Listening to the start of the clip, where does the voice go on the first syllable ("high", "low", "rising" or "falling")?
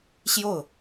falling